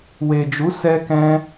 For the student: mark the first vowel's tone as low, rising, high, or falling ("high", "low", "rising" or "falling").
low